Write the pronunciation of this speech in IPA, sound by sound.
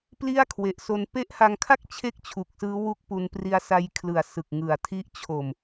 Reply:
p l i˥˩ a̯ kʰ w e˨˩ ʔ s o˧ n p e˦˥ ʔ h a˧ ŋ kʰ a˥˩ k̚ t͡ɕʰ e˥˩ k̚ t͡ɕʰ u˨˩ k̚ s ɯː˦˥ w u˦˥ k̚ p u˧ n p r i˦˥ a̯ s a˦˥ j kʰ l ɯ˨˩ a̯ s ɯ˨˩ k̚ ŋ ɯ˨˩ a̯ tʰ i˦˥ ʔ t͡ɕʰ o˨˩ m

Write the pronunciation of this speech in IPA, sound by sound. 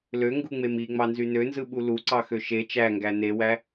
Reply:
l ø ŋ ɡ u ŋ͡m e m i ŋ͡m ɑ n z y n ø n z ɯ ɓ u l u ǀ ɑ x ø ʃ e t͡ʃ æ ŋ ɡ æ n e w æ

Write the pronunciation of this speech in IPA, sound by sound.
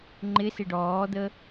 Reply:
ŋ͡ǃ ɪ s ɪ ɖ ɔː d̪ ə

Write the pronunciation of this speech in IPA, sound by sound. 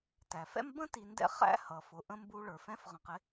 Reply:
t æ˩ f ɛ̰˥ m b ə̃˥ t i˨ n d ɛ̰˦ χ æ̰˦ h ʌ˩ f ʊ˩ ʔ ə̃˥ m b u˦ ɭ ə˞˩ f ɛ̃˥ f ʁ ə̃˨ q ɪ˦

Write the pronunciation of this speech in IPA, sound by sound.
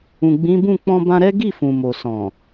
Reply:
ũ˨ ɡ͡b ĩ˨˦ b ũ˦˨ k͡p ɔ̃˧ b ã˧ ɾ ɛ˦ ɡ i˦˨ f ũ˨ m o˨ s ɔ̃˨

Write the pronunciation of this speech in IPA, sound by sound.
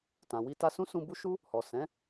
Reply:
t ã˨ w i˧ t a˧ s ũ˦ s ũ˧ b u˦ ʃ u˦ | h ɔ˨ s ɛ̃˨˦

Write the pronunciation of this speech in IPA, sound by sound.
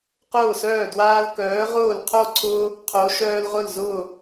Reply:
q ʊː˥˩ s œː˥˩ d w aː˦ l k œː˨˥ ʁ ʊː˥˩ l qʰ o˥˩ ǀʰ ʊː˦ | qʰ o˨˥ ʃ œː˦ l ʁ ʊ˥˩ l z ʊː˥˩

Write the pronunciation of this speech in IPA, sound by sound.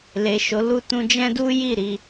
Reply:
l e˨ ʃ o˨˦ l u˦˨ t ũ˧ d͡ʒ ɛ̃˦ d u˦ j i˦˨ ɾ i˧

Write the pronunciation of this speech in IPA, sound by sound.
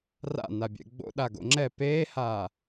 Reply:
r a̰ n a bʲ ɛ̰ ɡ͡b o̰ ɗ a ɡ o̰ ŋ͡ǁ ɛ p eː h aː

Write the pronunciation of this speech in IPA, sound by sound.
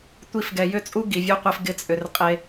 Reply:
tʷ i˧ f ɡ ɛ˨ j ʏ˦˨ t͡sʼ u˦ ɡ i˨ vʲ u˧ qʷ e˧ f ɡ ɪ˦ t͡sʼ ʏ˧ r qʼ e˦

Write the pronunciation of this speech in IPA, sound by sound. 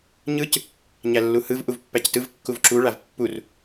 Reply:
ɲ ɯ c | ɲ æ lː u h ɯ v ʔ u v pː æ c t ɯ v kː u v ǁ u ɭ a v pː u r

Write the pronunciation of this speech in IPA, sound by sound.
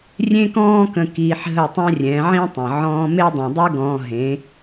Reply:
rʲ ẽ˦ k ɔ̃ː˦ k ə̃˧ k iː˧ ħ ɦ ə˦˨ tˤ ɛ̃˦ rʲ ɛ̃˨˦ ʕ ĩ˦ tˤ ə̃˨ ʕ ɔ̃ː˧ m e˦ dˤ ɛ̃˨ dˤ ʉ˦ ɡ ɔ̃ː˧ ɦ ẽ˨˦

